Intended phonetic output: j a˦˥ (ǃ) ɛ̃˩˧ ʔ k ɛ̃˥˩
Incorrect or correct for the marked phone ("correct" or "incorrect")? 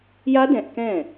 incorrect